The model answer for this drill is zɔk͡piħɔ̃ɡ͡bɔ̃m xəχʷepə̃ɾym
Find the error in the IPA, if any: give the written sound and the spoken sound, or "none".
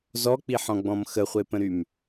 none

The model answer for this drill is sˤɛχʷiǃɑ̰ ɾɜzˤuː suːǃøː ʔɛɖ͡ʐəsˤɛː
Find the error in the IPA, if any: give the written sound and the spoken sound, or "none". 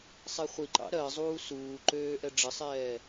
none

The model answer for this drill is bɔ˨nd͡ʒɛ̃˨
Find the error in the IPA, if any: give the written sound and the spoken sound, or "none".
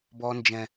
none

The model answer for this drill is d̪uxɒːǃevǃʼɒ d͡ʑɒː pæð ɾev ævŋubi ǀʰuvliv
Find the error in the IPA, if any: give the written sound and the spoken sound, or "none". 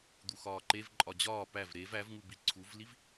ð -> v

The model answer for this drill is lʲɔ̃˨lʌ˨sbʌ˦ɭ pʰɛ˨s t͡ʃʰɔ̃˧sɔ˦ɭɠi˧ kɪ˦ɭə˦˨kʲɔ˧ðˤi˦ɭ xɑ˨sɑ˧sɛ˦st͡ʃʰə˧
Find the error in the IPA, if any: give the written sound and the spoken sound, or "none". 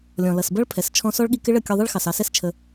none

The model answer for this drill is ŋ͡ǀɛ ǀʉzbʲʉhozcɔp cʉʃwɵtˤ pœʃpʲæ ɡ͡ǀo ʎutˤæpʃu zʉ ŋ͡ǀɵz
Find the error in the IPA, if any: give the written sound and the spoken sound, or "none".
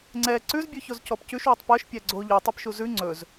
h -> ç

